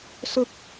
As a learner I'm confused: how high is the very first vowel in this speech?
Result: high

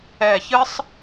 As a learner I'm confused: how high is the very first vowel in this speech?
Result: mid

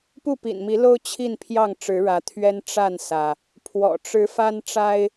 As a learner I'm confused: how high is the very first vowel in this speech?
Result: high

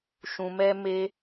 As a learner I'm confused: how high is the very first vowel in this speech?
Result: high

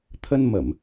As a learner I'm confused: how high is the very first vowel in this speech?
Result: mid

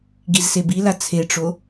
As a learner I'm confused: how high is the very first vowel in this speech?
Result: high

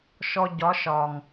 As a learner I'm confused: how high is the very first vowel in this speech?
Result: mid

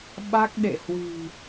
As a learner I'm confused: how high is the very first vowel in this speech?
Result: low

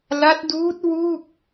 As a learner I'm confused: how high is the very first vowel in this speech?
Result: low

